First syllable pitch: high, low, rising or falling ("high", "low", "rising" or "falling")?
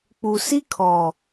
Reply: low